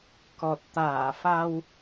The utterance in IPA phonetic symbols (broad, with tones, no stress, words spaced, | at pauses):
kɔ˨˩t̚t̪aː˧˩fa˧w